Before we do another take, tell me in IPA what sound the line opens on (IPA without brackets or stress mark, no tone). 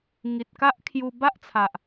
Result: ŋ